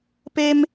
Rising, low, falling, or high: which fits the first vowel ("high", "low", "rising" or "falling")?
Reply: high